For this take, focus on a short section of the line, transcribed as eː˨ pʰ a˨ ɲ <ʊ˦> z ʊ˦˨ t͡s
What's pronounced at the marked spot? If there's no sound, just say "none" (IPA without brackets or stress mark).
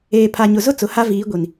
ʊ˨